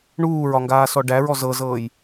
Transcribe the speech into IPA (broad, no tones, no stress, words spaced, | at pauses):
ɳuːɹɒŋɡaːsɔ ɖæɹɔ zɤzɤːj